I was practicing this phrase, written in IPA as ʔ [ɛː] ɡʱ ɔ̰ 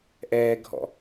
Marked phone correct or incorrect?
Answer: correct